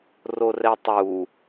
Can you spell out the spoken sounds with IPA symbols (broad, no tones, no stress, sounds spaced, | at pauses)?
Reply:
r o r ɛ tˤ u